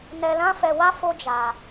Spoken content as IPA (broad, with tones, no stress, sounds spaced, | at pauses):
n ɛ˧ l ã˦ f ɛ˧ w a˦ f o˦ d͡ʒ a˧